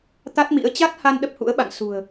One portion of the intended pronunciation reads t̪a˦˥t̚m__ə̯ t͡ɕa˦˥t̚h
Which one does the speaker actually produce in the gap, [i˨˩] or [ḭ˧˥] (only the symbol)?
ḭ˧˥